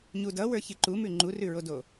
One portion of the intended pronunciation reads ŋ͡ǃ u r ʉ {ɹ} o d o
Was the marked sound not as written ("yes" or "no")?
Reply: no